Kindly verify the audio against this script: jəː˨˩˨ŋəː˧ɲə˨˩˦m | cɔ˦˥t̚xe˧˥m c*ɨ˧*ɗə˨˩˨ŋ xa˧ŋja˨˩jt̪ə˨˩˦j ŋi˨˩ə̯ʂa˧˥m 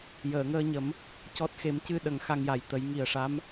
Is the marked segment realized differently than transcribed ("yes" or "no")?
no